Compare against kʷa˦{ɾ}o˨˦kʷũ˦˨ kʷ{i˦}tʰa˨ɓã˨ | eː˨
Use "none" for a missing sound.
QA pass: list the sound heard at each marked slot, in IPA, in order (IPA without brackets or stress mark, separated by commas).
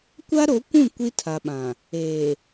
ɾ, i˦